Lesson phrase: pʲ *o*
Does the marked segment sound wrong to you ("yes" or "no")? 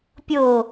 no